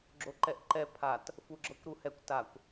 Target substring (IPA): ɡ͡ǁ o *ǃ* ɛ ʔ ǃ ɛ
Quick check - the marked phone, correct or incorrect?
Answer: correct